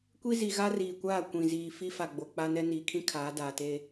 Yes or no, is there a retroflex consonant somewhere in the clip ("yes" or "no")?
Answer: no